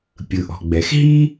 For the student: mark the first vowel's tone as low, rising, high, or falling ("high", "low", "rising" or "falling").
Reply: low